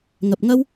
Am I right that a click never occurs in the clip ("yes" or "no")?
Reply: yes